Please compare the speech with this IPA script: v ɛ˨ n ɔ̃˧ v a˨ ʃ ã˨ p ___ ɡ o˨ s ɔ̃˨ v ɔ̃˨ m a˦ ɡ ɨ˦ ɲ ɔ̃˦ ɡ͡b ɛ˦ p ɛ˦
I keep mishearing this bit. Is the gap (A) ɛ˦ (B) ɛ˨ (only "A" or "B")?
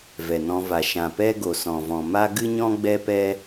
A